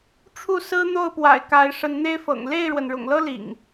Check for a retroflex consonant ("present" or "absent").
present